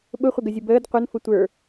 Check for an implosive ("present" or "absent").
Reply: present